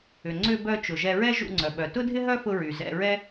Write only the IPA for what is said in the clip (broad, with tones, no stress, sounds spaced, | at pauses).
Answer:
ʏ˩ ŋ͡ǀ ʏ˧ b œ˧ t͡ʃ ʊ˩ ʒ ɛ˧ ɹ ɛ˥ ʒ ṵ˧ ŋ͡ǀ œ˩ ɓ œ˩ t ʊ˥ dʱ ɪ˥ ɦ œ˥ f ʊ˧ ɹ y˩ z ɛ̰˧ ɹ ɛ˥